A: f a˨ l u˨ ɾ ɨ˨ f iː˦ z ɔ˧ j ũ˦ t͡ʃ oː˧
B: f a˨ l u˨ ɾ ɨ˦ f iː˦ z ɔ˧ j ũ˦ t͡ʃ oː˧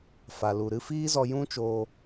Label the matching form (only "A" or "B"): B